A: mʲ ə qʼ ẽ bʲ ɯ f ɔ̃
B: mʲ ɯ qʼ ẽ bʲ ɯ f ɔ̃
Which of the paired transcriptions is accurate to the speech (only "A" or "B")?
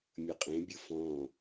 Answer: A